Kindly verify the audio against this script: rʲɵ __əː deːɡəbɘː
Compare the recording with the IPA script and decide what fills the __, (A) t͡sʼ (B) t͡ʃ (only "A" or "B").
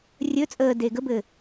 A